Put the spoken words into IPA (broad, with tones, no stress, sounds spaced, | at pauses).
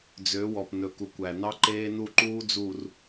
d͡z ø˨˦ w ɔ˨ p n ɵ˨ k u˨ kʷ æ˨ n ɑ˦ ǃ eː˦ n u˦˨ ǃ uː˦ d͡z u˨ r